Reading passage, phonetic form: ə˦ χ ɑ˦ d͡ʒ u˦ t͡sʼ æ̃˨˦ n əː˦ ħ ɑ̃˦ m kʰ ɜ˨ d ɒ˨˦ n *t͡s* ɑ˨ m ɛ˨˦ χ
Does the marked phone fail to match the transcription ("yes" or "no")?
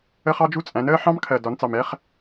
no